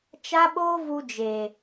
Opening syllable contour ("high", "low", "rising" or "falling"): high